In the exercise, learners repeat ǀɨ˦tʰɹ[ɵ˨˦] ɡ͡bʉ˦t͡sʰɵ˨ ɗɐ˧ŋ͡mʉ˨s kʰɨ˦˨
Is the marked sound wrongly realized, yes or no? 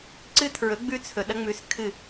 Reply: no